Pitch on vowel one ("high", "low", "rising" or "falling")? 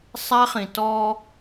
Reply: high